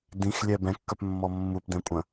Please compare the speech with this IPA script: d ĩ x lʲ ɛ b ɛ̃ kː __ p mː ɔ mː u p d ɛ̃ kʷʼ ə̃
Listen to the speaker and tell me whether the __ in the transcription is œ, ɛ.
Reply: œ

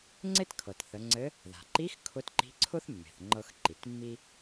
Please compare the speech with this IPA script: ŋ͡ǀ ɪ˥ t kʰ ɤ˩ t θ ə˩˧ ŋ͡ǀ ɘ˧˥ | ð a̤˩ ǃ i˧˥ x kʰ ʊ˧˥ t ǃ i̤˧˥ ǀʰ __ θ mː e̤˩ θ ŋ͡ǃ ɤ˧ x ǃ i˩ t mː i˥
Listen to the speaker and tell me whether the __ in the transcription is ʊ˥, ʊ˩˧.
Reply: ʊ˥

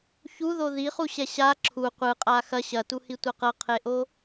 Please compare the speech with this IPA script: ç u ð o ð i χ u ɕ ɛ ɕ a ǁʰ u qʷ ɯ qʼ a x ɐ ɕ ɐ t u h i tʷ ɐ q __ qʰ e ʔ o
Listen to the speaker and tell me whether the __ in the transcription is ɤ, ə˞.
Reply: ɤ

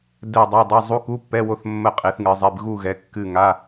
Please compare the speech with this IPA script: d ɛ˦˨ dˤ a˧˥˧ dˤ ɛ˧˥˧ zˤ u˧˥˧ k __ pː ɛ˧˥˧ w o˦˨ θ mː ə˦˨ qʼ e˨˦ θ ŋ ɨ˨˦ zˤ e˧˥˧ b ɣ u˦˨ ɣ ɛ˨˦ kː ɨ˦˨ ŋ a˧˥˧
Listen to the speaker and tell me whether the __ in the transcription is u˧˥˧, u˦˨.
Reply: u˧˥˧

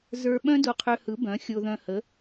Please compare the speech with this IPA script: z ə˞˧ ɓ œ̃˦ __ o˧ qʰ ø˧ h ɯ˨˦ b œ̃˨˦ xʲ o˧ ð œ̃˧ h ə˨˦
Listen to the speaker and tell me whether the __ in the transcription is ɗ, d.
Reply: d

